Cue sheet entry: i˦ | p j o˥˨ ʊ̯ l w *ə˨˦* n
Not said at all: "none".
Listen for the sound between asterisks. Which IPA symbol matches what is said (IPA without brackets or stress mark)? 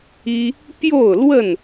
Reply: ə˥˨